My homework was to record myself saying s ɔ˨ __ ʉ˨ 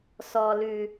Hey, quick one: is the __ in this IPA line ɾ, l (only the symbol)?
l